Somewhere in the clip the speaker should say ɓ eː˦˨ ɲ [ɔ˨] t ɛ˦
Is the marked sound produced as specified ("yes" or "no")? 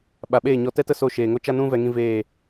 no